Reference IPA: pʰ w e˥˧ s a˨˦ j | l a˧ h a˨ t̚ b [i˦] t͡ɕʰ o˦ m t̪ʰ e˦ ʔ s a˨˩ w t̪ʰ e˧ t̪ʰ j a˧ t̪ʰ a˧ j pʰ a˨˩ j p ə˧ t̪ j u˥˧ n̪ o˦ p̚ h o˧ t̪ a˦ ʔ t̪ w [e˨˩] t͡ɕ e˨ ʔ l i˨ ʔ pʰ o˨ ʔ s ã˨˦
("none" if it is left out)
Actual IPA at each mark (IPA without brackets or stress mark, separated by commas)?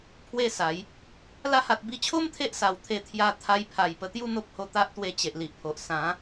i˧, e˧